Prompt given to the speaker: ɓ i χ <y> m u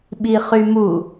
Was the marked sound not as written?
no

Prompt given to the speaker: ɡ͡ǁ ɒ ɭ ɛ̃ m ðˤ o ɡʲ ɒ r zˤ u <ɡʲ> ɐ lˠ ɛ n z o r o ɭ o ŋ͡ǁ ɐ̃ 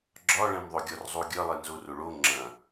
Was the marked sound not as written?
no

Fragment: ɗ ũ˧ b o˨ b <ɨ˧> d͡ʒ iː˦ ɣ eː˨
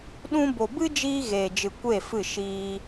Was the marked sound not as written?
yes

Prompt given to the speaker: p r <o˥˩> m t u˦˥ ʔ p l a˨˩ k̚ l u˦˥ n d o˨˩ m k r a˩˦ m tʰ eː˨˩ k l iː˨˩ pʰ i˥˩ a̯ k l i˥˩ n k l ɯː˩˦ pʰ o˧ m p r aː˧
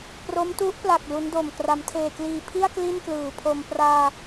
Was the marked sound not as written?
yes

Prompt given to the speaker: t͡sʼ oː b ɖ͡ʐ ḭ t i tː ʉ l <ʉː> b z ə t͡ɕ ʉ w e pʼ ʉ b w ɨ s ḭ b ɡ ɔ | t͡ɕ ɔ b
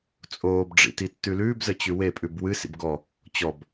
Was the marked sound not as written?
no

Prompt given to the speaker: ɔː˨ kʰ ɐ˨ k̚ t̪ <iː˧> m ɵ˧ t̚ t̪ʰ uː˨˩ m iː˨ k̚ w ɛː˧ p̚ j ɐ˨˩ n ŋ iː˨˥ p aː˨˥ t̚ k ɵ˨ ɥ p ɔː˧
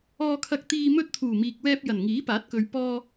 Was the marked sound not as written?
no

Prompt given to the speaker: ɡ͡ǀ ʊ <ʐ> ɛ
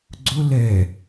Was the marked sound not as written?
yes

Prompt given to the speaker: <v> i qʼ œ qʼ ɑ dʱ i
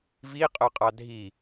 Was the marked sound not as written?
no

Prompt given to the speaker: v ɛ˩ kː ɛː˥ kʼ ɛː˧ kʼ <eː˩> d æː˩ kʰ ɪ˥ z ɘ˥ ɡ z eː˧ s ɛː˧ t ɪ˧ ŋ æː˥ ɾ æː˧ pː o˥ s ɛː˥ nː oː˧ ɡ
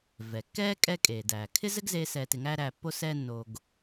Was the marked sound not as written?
no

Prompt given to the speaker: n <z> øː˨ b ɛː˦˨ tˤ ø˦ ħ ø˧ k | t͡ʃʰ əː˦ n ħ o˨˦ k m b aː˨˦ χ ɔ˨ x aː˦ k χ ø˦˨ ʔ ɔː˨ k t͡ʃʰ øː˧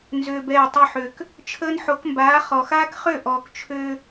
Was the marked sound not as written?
no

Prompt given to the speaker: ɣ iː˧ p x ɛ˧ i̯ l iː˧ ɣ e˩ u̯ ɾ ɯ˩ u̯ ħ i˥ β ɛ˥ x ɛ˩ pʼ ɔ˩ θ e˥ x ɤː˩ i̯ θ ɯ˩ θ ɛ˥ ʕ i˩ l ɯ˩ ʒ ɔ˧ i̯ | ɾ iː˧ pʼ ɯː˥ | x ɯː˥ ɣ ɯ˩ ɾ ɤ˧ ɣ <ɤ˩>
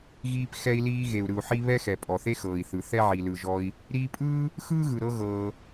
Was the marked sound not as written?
yes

